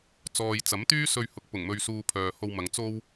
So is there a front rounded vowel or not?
yes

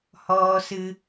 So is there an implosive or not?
no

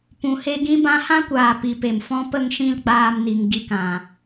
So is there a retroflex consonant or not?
no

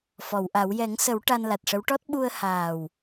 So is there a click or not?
no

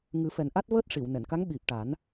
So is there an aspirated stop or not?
no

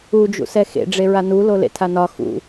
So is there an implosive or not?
no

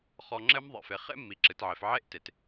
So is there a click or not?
yes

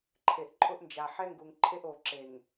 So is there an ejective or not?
yes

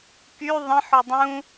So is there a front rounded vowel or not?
yes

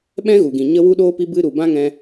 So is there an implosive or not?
yes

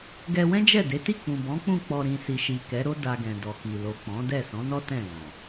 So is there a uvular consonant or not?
no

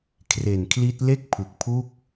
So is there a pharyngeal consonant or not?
no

